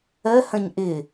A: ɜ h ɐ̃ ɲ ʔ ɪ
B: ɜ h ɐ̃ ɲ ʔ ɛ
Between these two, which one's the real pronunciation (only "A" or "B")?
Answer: A